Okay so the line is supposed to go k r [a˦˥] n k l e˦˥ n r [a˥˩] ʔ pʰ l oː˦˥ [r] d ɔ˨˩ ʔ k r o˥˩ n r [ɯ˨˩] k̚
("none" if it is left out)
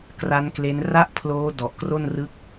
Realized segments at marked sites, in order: a˦˥, a˥˩, none, ɯ˦˥

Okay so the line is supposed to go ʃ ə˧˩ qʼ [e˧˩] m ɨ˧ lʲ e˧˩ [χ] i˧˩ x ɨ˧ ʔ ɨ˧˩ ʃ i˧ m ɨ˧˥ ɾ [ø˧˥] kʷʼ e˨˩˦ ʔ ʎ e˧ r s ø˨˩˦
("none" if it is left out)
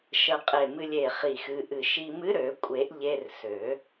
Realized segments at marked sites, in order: e˧˩, χ, ø˨˩˦

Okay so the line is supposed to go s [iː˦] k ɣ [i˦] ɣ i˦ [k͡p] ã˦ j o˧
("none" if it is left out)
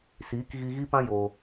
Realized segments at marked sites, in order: iː˨˦, i˧, p

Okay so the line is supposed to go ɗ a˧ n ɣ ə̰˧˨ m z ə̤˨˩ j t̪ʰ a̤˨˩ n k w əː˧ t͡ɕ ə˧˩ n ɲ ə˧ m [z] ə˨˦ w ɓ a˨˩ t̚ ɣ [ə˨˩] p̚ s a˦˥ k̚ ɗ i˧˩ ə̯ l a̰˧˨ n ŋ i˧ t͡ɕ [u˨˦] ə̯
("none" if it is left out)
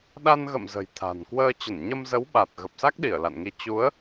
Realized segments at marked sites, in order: z, ə˨˩, u˨˦

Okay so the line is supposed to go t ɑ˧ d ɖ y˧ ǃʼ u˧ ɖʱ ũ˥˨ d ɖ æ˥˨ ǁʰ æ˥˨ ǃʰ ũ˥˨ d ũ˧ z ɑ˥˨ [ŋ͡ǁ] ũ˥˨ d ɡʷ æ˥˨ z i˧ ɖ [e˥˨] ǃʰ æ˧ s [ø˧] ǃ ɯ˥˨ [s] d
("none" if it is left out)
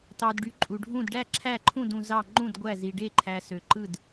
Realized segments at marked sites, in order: ŋ͡ǃ, e˥˨, ø˧, none

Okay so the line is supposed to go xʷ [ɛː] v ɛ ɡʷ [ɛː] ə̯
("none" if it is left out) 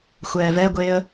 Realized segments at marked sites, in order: ɛː, eː

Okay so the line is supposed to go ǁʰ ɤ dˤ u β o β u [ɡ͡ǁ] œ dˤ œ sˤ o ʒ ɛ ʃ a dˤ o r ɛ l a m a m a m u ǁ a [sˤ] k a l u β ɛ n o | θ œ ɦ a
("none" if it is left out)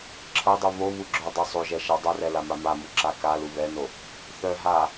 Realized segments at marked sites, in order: ɡ͡ǁ, none

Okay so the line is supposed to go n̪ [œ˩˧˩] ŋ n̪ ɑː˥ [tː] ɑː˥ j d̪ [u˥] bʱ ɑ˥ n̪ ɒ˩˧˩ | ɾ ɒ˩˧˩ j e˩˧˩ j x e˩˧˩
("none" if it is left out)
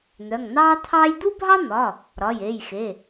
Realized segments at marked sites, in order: œ˩˧˩, t̪ʰ, u˥

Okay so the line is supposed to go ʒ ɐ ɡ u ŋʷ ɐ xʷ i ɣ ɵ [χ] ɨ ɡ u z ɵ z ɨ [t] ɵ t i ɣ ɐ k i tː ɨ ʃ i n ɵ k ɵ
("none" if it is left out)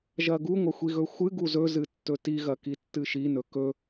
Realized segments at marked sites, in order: xʷ, tː

